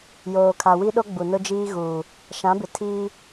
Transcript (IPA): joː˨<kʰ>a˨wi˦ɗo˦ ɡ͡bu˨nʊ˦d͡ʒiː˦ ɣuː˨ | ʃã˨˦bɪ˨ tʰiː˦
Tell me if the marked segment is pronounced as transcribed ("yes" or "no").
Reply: yes